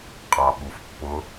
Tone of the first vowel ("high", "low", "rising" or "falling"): low